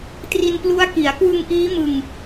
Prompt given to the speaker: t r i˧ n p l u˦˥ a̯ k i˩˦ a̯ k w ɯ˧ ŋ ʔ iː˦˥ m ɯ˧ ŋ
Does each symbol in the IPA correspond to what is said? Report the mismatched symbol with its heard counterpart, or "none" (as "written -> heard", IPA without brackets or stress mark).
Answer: none